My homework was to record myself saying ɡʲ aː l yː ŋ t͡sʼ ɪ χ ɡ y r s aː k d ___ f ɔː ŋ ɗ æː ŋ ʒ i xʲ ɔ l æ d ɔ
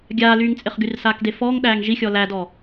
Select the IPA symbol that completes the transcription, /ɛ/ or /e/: e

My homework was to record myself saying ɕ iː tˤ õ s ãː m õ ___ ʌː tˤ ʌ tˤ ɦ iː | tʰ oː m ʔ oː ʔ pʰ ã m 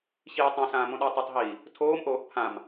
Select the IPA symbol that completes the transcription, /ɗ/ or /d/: ɗ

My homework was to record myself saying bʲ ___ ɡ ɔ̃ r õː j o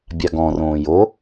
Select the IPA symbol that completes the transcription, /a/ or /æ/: a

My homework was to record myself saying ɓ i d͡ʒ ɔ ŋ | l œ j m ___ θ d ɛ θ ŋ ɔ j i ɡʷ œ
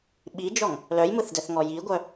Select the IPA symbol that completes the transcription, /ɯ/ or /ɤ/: ɯ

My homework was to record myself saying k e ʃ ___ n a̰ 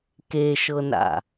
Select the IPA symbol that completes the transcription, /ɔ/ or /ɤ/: ɤ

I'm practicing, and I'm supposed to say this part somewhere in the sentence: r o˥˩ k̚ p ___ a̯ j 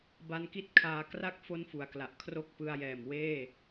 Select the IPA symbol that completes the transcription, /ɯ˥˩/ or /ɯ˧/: ɯ˧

